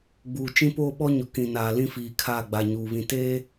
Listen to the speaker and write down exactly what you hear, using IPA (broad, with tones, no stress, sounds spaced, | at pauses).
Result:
ɡ͡b uː˨ t͡ʃ ĩ˦ p oː˦ ɓ ɔ˦ ɲ ʊ˨ k ĩ˨ n aː˨ l ĩ˦ f iː˨ kʰ aː˦˨ ɡ͡b a˨ ɲ uː˨ β ĩ˨ t eː˦